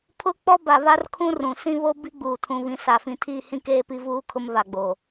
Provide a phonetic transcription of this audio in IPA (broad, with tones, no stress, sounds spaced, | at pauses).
pʰ ʊ˦ k͡p ɔ˦ b a˨ β a˦ r kʰ ũ˦ r ũ˨ s ĩ˦ β o˦ b i˦ ɡ͡b uː˨ tʰ ũ˨ β ĩ˨ s a˨ f ĩ˨ tʰ i˦˨ h ĩ˦ k eː˦ p i˦ v uː˦ kʰ ʊ˦ m β a˨ ɡ͡b o˨